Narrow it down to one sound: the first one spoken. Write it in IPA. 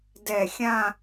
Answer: d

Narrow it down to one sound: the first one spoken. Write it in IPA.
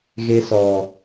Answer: ɣ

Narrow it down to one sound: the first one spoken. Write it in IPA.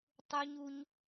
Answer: tˤ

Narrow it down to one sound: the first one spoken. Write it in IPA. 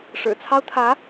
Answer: ʂ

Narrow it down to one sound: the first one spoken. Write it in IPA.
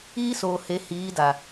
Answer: iː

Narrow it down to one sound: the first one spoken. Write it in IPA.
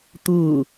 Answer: t̪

